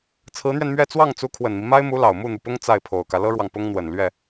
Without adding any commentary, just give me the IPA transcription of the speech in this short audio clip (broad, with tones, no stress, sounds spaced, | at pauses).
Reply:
t͡sʰ ɹ̩˧˥ n̪ ɥ ɛ˧ n m ɥ ɛ˥˧ t͡s w ɑ˥˩ ŋ t͡s u˧˥ kʰ w ə˨˩ n m i˦ m a˥ ɪ̯ m u˧˥ l ɑ˨˩ ʊ̯ m u˥˩ n̪ u˩ p ʊ˥ ŋ t͡s a˥˩ ɪ̯ pʰ o˨˩ ʊ̯ k ä˦ l ɤ˥ ɻ w ɑ˨ ŋ p ʊ˥ ŋ n̪ w ə˨˩ n l ɥ ɛ˥˩